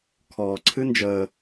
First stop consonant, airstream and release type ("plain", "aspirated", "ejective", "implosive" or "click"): aspirated